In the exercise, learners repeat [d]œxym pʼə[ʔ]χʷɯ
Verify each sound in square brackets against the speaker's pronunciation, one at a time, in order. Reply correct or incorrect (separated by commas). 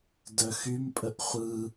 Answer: correct, correct